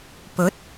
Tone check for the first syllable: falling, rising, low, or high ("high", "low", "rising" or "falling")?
rising